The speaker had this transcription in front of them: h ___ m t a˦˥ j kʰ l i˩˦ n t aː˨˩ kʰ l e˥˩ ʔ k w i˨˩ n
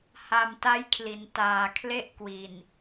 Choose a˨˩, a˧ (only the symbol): a˨˩